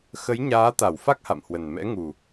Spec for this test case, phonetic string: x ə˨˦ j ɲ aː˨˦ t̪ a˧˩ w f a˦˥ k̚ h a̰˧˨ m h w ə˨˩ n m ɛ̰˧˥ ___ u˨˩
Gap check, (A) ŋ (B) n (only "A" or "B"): A